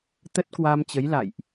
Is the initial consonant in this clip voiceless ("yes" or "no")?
yes